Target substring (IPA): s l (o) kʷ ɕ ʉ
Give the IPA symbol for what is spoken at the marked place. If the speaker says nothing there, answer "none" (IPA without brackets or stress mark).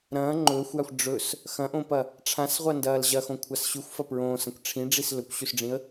ɵ